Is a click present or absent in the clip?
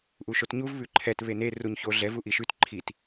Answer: present